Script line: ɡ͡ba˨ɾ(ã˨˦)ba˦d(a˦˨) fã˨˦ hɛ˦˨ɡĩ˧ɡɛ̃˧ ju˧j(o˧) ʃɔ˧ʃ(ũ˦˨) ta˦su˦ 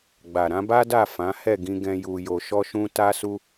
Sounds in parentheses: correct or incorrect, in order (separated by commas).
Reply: incorrect, correct, correct, incorrect